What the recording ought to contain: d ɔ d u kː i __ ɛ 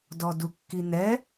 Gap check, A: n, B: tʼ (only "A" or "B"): A